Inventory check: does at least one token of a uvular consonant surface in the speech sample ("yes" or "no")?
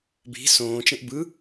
no